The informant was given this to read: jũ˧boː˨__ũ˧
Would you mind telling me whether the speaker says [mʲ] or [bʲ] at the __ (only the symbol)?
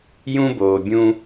bʲ